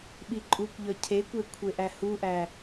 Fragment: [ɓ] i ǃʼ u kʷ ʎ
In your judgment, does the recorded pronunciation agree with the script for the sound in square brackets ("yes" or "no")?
yes